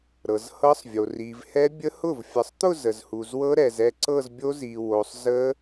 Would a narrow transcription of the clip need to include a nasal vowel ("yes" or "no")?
no